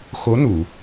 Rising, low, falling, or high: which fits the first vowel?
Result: rising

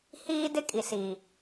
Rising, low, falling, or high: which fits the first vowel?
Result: high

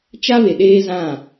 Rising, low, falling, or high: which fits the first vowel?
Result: high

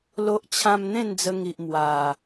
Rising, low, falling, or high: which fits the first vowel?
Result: high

